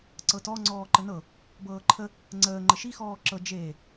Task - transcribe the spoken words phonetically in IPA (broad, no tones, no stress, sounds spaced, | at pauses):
ǀ ɤ t ɔ ŋ͡ǀ ɔː ǃ ə n ɤ | b ɤː ǃʰ ə | ŋ͡ǀ əː ŋ͡ǃ ə ʃ i x ɔː ǁ ɤ d͡ʒ eː